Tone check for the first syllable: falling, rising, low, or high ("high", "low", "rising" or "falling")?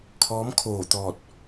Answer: rising